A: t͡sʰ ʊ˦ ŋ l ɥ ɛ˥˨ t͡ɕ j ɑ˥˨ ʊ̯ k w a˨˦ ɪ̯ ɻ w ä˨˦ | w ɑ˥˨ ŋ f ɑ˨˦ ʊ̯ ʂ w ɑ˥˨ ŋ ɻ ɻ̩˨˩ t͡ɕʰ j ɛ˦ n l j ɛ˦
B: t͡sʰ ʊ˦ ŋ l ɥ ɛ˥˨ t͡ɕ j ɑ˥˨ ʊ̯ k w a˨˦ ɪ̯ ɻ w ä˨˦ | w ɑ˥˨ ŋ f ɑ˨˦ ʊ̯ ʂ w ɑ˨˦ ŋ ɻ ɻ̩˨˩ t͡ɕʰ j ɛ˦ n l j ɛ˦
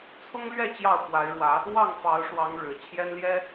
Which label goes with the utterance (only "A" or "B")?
B